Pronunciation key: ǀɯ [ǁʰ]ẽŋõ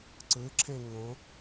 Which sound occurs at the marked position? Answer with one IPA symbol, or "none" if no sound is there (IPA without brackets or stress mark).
ǁʰ